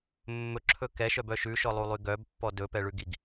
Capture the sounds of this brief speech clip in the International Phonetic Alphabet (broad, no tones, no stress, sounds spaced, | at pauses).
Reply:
mː ɵ ǁʰ ɵ k ɛ ʃ œ b œ ʃ ʉ ʃ ɔ lˠ u lˠ y ɡ œ b pː ɔ d ɵ p ɛ ɭ ʉ ɡ i ɡ